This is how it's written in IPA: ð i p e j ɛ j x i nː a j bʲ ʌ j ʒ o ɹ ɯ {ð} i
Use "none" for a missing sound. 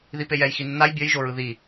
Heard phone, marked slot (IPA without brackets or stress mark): ð